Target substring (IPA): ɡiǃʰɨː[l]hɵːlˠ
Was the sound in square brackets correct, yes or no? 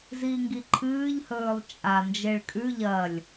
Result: no